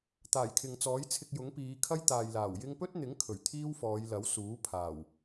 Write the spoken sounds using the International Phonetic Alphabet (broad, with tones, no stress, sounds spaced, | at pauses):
t̪ aː˨˩ j kʰ ɪ˨ ŋ t͡s ɔː˨˥ j t͡sʰ ɪ˧ k̚ j ʊ˨˥ ŋ p iː˨˧ kʰ ɐ˥ j t̪ aː˨ j l aː˨˩ w j ɪ˥ ŋ p ɵ˥ t̚ n̪ ɪ˨˥ ŋ kʰ ɵ˨˩ ɥ t̪ʰ iː˥ w f ɔː˨˧ j l ɐ˨˥ w s uː˨˥ pʰ aː˨˩ w